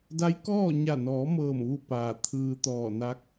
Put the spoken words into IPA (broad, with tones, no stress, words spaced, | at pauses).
da˧˥jkɔː˥˨ ɲa˧˩nɔː˩˧mɤː˧˩mʋu˧˩ paː˧˩ t̪ʰɯː˧t̪ɔː˧˩na˧˥k̚